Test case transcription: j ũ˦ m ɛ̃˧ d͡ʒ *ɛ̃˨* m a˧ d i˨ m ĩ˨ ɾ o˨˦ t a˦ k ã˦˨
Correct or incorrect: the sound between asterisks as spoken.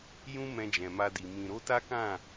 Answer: correct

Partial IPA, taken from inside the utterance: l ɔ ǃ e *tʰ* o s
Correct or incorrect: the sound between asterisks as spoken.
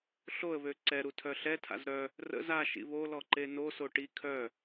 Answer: incorrect: n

